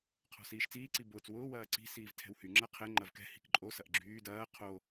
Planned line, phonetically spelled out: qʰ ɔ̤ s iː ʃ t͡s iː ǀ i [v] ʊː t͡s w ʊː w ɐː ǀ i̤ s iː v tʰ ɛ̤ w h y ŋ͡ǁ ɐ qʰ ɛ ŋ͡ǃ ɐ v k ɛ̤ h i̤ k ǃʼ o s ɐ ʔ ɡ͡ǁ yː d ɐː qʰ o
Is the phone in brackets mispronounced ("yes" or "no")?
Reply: yes